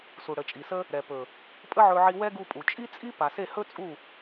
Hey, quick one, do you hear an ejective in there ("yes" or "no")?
yes